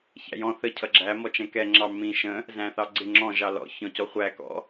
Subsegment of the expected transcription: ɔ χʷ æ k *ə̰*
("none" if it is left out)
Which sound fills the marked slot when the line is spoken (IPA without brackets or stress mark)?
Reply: ɔ̰